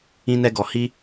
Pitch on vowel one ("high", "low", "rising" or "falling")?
high